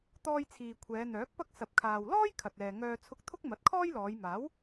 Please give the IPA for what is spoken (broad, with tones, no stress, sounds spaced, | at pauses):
t̪ ɔː˧ j t͡sʰ iː˨ kʷʰ ɛː˨˧ n̪ œː˨˥ k̚ p ɐ˥ k̚ s ɐ˨˥ p̚ kʰ aː˨ w l ɔː˥ j kʰ ɐ˨ t̚ ɛː˨ ŋ œː˧ t͡sʰ ʊ˧ k̚ t̪ʰ ʊ˥ k̚ m ɐ˨˥ t̚ kʰ ɔː˥ j l ɔː˨˧ j m aː˨˥ w